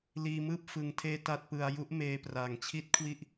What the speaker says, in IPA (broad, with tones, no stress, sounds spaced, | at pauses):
l iː˧ m ɯː˥˩ p̚ f ɯ˧ ŋ tʰ eː˥˩ t a˥˩ t̚ p ɯ˧ a̯ j u˦˥ ʔ m eː˧ p r a˨˩ ŋ t͡ɕʰ i˥˩ t̚ kʰ w i˥˩ ʔ